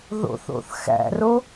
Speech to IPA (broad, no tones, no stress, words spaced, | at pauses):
ðo̰θo̰θxæ̰ro